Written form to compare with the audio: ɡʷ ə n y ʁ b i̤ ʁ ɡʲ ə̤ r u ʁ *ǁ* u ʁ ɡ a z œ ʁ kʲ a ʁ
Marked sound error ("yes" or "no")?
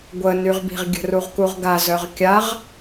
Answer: yes